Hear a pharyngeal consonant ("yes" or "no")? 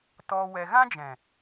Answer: no